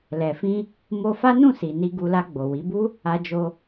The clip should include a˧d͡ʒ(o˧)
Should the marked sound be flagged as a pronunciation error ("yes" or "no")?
no